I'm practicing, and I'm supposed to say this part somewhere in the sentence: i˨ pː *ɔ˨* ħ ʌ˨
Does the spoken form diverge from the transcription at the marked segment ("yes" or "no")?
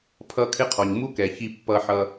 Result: yes